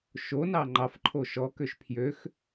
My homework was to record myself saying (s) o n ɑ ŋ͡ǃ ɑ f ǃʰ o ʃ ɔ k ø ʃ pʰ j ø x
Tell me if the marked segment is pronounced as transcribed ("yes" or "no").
no